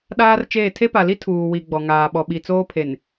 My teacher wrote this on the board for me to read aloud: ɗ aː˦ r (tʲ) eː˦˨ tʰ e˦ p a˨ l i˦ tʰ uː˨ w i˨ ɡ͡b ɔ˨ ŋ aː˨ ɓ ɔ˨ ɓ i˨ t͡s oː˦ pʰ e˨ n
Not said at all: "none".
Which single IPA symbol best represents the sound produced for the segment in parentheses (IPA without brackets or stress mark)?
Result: t͡ʃ